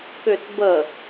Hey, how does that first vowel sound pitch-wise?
low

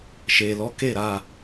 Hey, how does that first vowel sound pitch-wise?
low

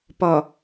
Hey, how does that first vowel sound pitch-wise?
low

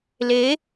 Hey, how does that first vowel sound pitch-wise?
rising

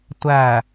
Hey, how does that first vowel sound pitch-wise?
low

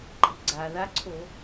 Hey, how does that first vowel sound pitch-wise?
rising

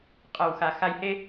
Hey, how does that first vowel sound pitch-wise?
low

